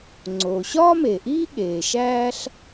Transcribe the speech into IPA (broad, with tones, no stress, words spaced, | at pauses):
ŋ͡ǀoː˩ɕɒː˥me˩ʔiː˥ ɠeː˩ʃæː˥ɬ